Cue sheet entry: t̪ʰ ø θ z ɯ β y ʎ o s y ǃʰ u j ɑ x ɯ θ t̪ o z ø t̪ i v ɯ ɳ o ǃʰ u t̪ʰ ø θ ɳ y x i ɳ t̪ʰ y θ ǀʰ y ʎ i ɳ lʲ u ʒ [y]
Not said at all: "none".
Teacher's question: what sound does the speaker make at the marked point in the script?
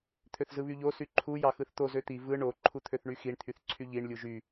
y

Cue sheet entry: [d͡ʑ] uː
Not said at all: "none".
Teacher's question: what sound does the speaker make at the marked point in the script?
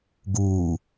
ɡ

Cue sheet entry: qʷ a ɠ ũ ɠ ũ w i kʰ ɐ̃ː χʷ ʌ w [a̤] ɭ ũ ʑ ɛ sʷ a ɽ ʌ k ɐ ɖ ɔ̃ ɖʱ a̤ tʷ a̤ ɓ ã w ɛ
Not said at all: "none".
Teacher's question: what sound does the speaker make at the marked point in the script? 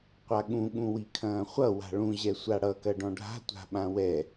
a̤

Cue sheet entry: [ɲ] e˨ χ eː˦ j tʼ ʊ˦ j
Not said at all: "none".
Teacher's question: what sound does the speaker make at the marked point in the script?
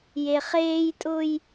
j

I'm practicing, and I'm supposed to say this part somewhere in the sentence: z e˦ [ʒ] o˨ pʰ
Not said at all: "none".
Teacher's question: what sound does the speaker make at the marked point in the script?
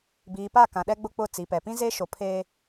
ʃ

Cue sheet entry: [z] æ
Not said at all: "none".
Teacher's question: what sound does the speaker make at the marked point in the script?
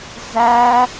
z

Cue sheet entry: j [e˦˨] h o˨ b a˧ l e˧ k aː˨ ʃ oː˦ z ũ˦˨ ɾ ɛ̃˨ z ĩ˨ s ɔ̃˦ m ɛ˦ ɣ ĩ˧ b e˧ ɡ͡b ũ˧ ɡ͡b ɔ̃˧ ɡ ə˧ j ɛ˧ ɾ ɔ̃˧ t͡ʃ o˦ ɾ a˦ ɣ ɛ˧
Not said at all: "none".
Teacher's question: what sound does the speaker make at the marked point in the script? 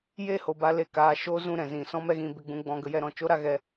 e˦˨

